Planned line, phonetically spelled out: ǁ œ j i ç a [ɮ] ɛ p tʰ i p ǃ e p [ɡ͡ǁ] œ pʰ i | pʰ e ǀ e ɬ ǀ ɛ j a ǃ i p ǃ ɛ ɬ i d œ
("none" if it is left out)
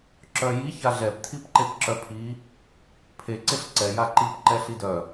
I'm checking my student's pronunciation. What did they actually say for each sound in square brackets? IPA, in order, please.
ɮ, ǁ

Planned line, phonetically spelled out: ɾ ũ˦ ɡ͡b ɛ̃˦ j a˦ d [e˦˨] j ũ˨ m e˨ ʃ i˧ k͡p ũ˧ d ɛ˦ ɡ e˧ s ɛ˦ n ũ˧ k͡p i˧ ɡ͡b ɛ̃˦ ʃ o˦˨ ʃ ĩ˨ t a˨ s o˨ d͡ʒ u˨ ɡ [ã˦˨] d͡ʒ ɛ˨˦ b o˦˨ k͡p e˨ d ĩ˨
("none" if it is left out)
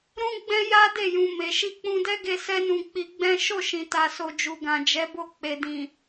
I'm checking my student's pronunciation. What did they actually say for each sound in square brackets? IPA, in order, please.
e˦˨, ã˨

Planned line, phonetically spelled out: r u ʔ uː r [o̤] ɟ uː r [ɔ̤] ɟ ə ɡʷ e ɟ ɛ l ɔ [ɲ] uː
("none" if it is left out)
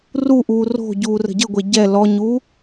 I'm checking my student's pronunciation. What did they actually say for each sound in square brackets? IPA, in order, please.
o̤, ə̤, ɲ

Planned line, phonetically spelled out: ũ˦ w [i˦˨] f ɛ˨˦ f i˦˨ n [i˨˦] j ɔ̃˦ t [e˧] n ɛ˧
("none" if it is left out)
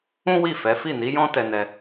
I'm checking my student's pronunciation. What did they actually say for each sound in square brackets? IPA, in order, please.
i˦˨, i˨˦, ɛ˧

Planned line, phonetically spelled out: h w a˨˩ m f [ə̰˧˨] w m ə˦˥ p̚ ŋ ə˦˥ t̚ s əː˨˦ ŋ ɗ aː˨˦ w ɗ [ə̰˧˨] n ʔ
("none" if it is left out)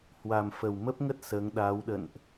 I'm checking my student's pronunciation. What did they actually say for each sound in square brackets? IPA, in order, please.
ə˨˩, ə̰˧˨

